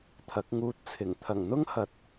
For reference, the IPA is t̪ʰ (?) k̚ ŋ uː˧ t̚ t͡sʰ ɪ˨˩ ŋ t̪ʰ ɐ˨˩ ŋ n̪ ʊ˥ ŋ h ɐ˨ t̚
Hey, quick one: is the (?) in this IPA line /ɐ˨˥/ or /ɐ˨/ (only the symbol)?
ɐ˨˥